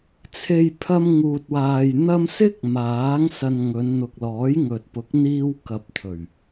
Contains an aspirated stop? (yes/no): yes